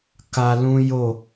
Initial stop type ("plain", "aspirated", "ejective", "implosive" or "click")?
plain